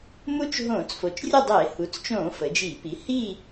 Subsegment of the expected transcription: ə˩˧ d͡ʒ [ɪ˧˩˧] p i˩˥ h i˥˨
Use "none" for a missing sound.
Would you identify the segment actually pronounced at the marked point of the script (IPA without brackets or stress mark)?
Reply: i˧˩˧